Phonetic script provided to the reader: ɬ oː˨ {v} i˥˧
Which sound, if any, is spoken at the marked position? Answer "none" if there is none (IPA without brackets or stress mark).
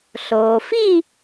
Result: f